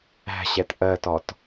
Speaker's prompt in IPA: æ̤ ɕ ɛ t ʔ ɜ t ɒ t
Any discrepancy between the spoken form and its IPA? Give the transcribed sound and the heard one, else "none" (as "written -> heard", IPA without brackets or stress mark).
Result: none